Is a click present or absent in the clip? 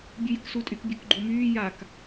present